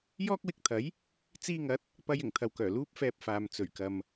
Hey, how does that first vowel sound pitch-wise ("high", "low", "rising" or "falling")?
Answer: high